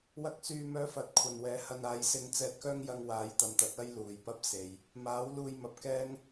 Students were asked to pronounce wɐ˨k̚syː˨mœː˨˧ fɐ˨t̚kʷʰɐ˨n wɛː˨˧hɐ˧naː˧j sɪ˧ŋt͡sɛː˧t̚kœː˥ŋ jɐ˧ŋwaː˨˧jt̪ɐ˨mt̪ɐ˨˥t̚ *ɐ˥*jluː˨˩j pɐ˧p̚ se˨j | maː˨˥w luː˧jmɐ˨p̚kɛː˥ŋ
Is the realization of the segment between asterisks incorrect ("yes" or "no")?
no